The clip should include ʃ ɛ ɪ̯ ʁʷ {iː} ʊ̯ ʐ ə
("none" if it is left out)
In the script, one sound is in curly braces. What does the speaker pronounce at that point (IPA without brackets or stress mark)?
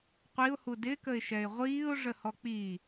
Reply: iː